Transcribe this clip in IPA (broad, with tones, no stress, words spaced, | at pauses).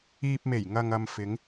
iː˨p̚me˨˩j ŋɐ˨ŋɐ˨m fɪ˨˧ŋ